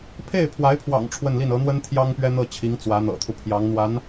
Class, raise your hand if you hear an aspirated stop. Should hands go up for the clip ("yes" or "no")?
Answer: yes